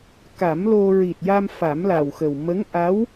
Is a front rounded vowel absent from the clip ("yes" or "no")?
yes